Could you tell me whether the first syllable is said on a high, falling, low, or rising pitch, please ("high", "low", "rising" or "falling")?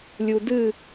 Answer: low